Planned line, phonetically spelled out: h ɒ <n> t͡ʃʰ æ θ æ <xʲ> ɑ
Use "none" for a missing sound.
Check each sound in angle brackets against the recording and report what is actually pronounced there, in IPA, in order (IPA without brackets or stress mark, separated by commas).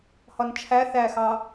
n, x